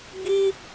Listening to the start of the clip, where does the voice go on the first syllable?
high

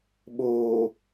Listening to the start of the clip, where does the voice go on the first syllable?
low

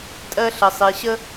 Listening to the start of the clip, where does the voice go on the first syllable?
high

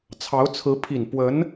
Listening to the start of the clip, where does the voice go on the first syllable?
rising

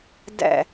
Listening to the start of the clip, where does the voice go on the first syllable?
low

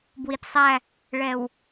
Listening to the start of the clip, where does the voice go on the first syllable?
low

